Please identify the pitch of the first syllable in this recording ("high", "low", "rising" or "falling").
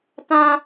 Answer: high